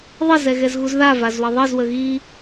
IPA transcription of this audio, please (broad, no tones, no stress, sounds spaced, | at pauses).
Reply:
ðˤ ə z ɛ ɣ ɛ z ɣ u z ð a v a z w ə ðˤ i z w ə ɣ i